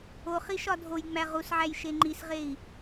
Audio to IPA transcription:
o χiʃɒdʱojŋ͡mæ ʁusʕæj ʃeŋ͡ǃisʁei̯

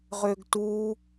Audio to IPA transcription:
ʁʏːɡtuː

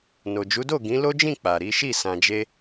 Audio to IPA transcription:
no˨d͡ʒu˨˦do˦˨ ɡĩ˨˦lo˦d͡ʒĩ˦˨ k͡pa˨ɾi˨˦ʃi˦˨ sã˨d͡ʒe˧

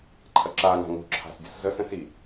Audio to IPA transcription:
ǃʰɐǁa ŋa̤ŋo̤ǁʰa̤s dʲəszəs ə̃si

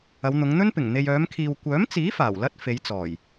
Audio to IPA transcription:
ɐ˨˧wn̪ʊ˨˧ŋn̪ɵ˥npɪ˨˩ŋ n̪e˨jœː˨˧mkʰiː˨w kʷœː˨˥mt͡siː˨˥ faː˨˩w lɐ˥t̚ fe˨˧jt͡sɔː˨˩j

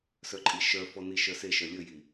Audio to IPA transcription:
sœǃʼiʃœfɔ niʃœseʃœ lʲɵji

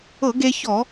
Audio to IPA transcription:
ɤ˧˩˧ɡe˧ çɔ˧˩˧

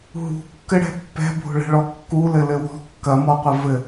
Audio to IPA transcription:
ɦṳkːɘɽɛ̤ pːɛ̤bʱo̤ɭɛ̤ɭɔ kːulɘlɘ wɔ̤ kːɐmɔqʷɘ vɘ

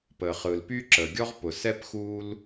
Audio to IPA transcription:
pə˩χɯ˩l py˥ǁə˩ ɡʲɔ˥ʁpʊ˩sɛ˥p xu˥l

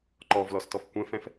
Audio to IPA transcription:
ǃɔvlɔstɔf kʷɛ̃fɛ̃f

